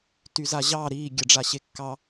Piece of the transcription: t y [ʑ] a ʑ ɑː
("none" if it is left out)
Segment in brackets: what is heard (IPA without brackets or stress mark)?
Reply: z